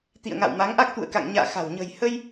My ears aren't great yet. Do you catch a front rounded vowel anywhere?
no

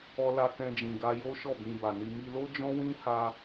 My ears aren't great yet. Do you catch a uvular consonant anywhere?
no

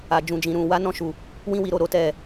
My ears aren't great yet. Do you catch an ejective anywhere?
no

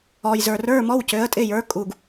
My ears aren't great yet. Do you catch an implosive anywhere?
no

